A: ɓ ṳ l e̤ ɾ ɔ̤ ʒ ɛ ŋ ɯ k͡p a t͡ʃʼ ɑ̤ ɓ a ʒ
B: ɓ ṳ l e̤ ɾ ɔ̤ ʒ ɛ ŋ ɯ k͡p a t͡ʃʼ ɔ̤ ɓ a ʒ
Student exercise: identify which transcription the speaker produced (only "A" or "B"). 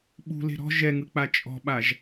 B